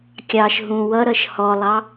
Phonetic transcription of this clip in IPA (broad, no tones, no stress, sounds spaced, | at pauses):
kʲ ɑ ʃ ɦ ũ w ʌ ɾ ʌ ʃ h ɔ lˠ ɑ